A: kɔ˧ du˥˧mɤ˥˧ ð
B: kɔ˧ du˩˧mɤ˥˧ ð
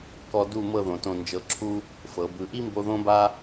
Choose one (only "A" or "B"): A